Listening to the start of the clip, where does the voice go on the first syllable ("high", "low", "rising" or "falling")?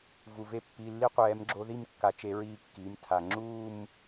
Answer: low